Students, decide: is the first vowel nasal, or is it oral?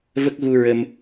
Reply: oral